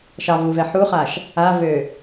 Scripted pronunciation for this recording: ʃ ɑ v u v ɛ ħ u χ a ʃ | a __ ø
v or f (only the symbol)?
v